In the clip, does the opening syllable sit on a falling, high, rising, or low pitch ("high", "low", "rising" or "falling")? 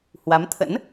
rising